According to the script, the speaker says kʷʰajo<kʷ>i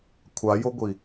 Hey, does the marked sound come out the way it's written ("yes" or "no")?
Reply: no